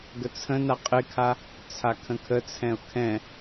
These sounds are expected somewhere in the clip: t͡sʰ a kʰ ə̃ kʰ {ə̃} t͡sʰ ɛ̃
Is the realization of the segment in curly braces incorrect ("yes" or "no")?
yes